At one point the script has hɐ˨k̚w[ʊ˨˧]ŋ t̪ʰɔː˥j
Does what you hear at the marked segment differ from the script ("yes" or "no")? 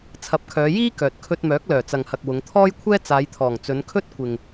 no